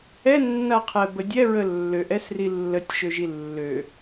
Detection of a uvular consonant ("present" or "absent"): present